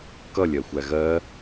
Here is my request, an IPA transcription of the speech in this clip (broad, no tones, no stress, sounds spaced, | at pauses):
k ʌ lʲ ɜ xʷ æ ɣ ɜ